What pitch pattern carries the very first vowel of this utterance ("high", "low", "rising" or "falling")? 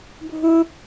high